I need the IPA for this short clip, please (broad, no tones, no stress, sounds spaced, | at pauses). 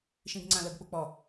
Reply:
ʃ ĩ ɡ ŋ͡ǀ ã l ə ɡ k͡p u k͡p ɔ